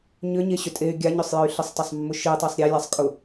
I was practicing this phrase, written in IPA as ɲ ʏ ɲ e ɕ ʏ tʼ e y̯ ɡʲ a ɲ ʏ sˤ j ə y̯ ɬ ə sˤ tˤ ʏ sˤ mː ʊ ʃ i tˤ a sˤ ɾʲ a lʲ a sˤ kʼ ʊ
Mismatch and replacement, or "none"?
none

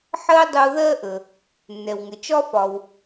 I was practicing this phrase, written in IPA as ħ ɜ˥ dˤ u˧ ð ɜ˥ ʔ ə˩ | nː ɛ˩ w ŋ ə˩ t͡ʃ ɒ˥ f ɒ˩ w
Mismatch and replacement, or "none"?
none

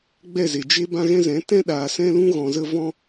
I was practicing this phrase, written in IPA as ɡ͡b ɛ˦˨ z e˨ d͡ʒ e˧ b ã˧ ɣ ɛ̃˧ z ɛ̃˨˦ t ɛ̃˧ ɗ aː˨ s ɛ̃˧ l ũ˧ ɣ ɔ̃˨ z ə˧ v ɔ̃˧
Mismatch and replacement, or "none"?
none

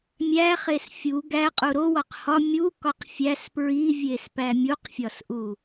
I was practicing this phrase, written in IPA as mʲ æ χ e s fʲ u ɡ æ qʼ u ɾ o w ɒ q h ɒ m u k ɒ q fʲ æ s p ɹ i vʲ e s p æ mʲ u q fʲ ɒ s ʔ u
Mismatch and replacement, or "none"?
m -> mʲ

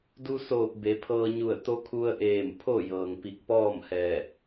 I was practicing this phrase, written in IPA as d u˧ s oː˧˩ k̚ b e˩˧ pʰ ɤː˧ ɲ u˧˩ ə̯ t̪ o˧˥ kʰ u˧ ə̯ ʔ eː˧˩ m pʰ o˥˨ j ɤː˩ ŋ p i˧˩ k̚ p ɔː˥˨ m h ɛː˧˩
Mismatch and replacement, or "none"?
none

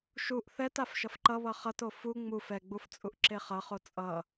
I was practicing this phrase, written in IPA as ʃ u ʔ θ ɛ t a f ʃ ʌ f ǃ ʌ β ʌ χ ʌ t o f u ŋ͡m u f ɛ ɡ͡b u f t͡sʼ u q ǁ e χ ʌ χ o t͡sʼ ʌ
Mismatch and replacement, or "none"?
q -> ʔ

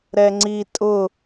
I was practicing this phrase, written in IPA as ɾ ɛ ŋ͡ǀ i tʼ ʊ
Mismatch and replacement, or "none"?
none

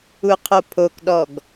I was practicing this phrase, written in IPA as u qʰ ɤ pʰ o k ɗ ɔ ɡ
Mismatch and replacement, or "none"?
ɤ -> o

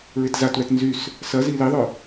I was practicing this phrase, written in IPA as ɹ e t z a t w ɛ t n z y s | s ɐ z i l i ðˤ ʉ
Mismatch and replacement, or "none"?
ʉ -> ʊ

